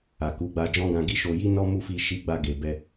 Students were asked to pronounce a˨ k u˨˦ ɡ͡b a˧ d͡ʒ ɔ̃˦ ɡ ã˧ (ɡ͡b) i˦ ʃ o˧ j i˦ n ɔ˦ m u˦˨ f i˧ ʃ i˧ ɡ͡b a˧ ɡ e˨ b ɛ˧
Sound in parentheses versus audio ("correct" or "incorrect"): incorrect